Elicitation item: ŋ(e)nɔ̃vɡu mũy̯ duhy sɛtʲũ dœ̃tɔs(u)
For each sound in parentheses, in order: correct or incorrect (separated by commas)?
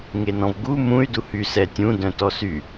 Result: correct, incorrect